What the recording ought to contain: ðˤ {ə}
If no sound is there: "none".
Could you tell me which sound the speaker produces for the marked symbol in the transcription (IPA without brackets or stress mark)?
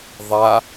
a